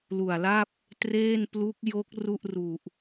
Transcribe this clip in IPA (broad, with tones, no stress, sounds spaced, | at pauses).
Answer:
l u˨˩ a̯ l a˥˩ p̚ | t r eː˥˩ n p l u˦˥ k̚ j o˦˥ k̚ r u˥˩ ʔ r u˨˩ ʔ